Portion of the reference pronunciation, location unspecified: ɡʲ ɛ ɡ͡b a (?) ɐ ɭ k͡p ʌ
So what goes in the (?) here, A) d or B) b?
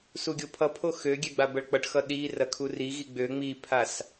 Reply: B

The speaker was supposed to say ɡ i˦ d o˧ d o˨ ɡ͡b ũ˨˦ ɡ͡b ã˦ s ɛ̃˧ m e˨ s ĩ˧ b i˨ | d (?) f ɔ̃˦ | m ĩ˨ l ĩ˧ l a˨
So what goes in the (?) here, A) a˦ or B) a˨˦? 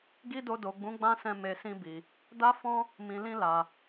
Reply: A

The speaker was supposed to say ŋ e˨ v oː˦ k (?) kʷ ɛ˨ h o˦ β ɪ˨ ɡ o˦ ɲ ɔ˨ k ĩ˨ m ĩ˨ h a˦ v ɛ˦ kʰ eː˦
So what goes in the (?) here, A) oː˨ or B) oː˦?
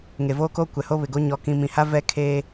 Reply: B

